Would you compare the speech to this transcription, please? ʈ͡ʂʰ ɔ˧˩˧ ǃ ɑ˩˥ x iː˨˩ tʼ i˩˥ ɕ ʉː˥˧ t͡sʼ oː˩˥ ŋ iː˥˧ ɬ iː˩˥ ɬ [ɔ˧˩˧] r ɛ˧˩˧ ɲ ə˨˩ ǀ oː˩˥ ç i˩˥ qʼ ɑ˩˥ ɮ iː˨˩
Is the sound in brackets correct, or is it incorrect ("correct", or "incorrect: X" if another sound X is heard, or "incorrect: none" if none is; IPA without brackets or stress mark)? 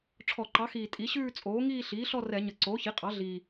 incorrect: ɔ˥˧